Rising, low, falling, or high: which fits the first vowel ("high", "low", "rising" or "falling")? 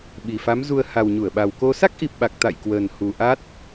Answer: low